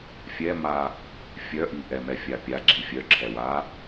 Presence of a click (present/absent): present